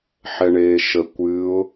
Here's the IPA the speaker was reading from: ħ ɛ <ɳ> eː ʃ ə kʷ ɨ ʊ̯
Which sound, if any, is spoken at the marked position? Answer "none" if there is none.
ɳ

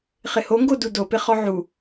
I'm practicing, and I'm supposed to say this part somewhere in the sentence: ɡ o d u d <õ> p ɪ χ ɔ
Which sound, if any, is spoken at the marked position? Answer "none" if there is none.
o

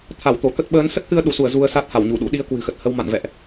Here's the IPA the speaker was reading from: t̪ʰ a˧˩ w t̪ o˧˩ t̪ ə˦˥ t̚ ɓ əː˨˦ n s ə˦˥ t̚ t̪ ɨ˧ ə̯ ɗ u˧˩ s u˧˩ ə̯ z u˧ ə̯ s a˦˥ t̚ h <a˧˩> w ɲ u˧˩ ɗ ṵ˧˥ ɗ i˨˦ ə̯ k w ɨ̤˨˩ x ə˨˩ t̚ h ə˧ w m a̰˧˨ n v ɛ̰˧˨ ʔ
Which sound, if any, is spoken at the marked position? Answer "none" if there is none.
a˧˩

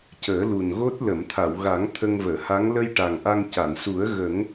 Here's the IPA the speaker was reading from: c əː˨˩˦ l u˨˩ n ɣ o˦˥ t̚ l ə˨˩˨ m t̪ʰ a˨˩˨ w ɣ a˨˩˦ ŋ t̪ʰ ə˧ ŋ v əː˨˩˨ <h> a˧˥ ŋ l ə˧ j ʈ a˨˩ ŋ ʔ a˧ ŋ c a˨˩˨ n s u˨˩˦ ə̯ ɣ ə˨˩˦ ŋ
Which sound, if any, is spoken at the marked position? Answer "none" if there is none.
h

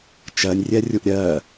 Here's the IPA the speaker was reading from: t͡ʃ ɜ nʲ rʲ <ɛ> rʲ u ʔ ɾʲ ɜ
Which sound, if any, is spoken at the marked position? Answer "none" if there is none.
ɛ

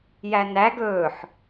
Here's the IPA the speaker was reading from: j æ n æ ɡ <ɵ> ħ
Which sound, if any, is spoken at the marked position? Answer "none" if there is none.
ɵ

